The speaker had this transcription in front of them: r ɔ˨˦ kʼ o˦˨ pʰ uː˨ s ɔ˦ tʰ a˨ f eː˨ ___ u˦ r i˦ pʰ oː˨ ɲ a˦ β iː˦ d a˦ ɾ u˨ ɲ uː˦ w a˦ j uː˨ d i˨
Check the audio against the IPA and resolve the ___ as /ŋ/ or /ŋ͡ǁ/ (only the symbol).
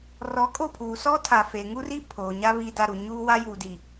ŋ